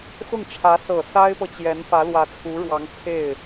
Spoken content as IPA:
x ʊ˥˩ ŋ ʈ͡ʂʰ ä˧˥ s ɤ˨˩ s a˥ ɪ̯ p ɤ˨ t͡ɕ j ɛ˧˥ n f ä˧˥ l w ä˧˥ t͡sʰ u˧˥ ɻ w ɑ˧˥ ŋ t͡sʰ e˥˩ ɪ̯

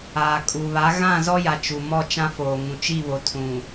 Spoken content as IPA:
aː˨ kʼ u˨ β a˨˦ ɣ ã˦˨ z ɔ˦ j a˨ t͡ʃ u˨ m ɔ˦˨ t͡ʃ ã˦ f oː˨ ŋ ũ˨ t͡ʃ i˦˨ β o˨ tʰ ũ˨

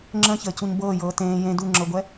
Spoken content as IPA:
ŋ͡ǁ ə̃ ç əː c u ɲ b ɤː j ɤː t ẽː j ẽ d u ŋ͡ǁ ɤ ɡʷ ɛ

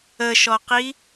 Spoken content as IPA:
ə ʃ ɔ q i

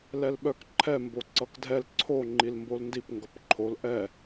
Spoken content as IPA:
l ɛ l ɓ œ k ǃʰ ɛ m b o ǀ ʌ k dʱ ɛ l ǀʰ o ŋ͡ǃ i l m b o l n d i p ŋ ɡ ʌ p ǃʰ o l ʔ ɛ

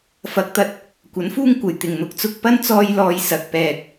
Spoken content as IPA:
f ɐ˨˥ k̚ t̪ ɐ˧ t̚ | kʷ ɐ˨˥ n f uː˥ ŋ kʷ ɐ˨˩ j t̪ ɪ˨˩ ŋ n̪ ʊ˧ k̚ t͡s ʊ˧ k̚ p ɐ˥ n t͡s ɔː˧ j l ɔː˨ j s ɐ˧ k̚ p ɛː˧ k̚

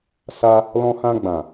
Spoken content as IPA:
s a˧ | l ɔ̃˧ h ã˧ ɡ͡b ã˨

